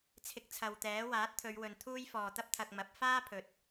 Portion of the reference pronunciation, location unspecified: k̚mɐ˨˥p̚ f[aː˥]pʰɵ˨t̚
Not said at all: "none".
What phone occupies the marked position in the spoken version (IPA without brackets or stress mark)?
aː˥